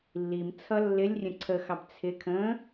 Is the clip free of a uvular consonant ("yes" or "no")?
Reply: yes